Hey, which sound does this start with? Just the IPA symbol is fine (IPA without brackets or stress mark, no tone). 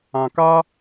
ã